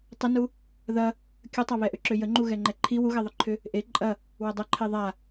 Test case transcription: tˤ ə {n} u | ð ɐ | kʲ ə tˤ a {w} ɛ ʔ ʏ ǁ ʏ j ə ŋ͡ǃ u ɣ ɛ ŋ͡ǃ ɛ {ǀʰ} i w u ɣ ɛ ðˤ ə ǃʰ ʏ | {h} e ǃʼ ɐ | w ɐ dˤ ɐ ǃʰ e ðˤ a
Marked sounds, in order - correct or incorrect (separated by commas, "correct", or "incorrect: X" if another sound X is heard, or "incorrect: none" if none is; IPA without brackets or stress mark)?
correct, incorrect: β, incorrect: ǃʰ, incorrect: ʔ